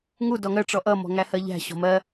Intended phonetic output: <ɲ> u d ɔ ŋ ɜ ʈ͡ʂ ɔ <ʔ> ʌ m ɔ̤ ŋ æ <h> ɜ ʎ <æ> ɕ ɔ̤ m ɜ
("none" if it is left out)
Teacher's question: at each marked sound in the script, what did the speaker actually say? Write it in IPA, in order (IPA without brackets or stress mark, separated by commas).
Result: ŋ, ʔ, h, æ̤